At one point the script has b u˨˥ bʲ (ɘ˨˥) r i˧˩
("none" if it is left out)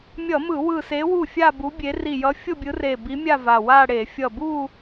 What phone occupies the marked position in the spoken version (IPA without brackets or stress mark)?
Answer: e˨˥